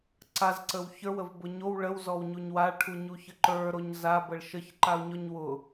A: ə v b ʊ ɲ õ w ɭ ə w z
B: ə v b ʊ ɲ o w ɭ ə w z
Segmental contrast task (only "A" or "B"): B